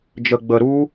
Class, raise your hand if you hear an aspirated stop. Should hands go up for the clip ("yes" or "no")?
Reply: no